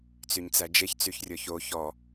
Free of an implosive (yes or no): yes